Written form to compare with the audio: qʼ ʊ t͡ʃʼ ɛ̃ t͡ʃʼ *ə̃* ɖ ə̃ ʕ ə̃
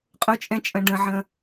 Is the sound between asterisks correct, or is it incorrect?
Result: correct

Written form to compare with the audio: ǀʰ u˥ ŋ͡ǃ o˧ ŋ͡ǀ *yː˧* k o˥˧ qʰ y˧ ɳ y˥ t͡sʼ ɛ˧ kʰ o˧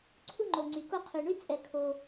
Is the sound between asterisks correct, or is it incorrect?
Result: incorrect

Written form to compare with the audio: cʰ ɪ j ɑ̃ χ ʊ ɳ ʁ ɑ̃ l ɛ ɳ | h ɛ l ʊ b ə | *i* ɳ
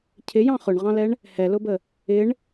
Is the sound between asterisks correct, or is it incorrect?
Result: incorrect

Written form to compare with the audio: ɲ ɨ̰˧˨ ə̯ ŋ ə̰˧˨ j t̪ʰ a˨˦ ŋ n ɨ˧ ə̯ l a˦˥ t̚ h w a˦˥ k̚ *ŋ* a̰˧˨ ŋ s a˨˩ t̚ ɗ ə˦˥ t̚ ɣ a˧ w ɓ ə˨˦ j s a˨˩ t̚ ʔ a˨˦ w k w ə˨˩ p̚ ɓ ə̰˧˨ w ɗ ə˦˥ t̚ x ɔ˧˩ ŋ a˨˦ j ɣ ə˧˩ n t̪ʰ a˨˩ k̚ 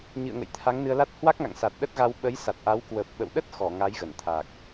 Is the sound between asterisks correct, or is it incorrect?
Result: correct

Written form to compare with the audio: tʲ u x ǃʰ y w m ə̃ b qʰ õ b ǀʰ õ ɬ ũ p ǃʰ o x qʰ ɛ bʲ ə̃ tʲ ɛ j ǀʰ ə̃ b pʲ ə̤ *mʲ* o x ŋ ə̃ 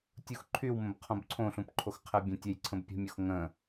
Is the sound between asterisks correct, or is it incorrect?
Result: correct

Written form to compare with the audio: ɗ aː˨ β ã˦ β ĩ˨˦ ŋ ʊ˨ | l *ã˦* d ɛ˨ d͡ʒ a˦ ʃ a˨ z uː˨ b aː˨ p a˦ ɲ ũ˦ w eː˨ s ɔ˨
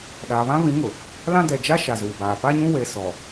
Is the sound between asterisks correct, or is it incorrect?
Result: correct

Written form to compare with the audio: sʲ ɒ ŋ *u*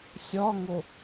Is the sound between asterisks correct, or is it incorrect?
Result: incorrect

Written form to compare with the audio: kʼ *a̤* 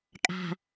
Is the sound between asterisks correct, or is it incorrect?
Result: correct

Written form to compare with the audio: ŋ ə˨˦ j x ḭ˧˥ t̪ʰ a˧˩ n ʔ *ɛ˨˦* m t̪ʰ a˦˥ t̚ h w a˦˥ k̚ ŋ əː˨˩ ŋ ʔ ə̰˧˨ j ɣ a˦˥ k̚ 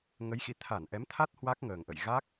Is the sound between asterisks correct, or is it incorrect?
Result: correct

